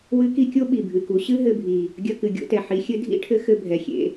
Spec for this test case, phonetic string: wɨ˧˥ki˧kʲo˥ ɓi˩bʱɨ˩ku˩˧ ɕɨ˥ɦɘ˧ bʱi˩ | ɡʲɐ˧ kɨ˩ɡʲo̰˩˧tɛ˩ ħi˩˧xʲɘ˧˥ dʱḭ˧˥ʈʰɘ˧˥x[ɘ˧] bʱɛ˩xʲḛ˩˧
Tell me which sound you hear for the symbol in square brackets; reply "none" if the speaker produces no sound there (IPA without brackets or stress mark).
ɘ˧